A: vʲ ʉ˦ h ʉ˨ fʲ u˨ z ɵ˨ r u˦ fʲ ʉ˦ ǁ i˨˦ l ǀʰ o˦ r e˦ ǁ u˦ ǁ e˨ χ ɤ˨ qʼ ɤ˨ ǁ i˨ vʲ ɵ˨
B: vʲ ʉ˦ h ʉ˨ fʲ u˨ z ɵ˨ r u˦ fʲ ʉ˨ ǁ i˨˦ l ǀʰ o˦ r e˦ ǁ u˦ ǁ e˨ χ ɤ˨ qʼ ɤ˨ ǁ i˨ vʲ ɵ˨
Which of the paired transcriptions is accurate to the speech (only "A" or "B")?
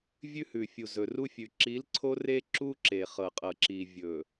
B